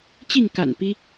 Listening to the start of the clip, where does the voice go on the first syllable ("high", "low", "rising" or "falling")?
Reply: falling